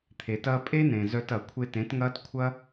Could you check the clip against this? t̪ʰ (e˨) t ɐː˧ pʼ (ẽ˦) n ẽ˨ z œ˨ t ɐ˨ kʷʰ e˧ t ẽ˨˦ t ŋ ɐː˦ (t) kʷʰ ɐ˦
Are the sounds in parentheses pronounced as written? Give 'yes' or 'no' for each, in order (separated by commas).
yes, no, yes